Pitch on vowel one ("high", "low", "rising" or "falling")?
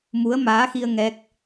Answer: rising